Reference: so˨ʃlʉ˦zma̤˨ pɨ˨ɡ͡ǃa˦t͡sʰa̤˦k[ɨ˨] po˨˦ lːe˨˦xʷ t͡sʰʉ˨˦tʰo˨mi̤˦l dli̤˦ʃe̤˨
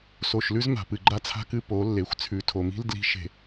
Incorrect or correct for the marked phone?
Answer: incorrect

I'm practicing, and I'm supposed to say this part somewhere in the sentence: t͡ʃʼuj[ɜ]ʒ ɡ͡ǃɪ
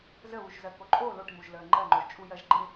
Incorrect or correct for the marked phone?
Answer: correct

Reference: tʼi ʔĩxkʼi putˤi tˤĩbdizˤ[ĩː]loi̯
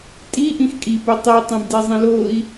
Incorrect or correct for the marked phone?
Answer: incorrect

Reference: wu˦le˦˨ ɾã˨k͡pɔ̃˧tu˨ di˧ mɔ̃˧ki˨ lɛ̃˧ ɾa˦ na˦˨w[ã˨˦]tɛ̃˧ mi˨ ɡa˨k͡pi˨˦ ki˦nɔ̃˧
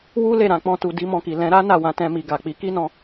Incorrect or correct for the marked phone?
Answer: correct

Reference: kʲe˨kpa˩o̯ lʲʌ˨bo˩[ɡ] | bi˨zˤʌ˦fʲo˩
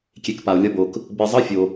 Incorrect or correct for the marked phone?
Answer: incorrect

